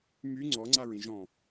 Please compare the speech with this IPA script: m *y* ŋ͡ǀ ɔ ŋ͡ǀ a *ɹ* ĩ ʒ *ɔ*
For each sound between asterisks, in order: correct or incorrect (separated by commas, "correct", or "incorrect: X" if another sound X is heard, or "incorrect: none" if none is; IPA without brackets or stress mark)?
correct, correct, incorrect: ɔ̃